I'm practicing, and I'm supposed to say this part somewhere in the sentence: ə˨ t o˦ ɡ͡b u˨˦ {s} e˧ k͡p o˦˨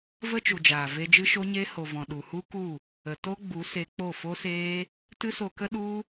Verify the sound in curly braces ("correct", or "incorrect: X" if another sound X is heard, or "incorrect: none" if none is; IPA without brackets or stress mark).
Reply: correct